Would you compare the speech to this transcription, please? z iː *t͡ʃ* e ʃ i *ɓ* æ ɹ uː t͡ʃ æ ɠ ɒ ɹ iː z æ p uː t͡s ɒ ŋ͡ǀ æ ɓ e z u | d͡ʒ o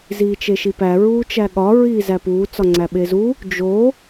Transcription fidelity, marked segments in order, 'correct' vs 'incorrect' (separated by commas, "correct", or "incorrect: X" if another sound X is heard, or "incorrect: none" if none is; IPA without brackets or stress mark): correct, incorrect: p